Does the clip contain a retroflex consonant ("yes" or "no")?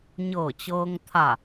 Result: no